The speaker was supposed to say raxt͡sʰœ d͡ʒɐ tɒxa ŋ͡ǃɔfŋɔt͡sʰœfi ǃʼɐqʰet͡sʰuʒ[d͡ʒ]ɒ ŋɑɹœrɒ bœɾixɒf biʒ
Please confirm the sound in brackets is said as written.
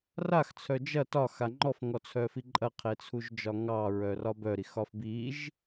yes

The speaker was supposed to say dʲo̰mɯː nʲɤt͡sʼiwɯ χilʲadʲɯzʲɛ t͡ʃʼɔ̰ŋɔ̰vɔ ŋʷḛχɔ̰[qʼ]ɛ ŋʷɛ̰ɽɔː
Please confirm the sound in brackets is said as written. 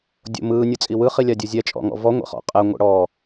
yes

